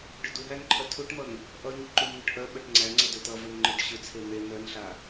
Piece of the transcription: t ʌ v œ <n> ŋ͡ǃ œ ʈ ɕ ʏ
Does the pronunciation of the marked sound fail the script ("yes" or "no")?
no